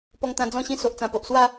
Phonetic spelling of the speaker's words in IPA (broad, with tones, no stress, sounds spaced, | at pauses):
p ɔ˧ ŋ t̪ ã˧ d͡z ɔ̃˥˧ ɕ ĩ˥˧ s o˨ ʔ t͡s ã˨˩ p o˨ ʔ s w a˥˧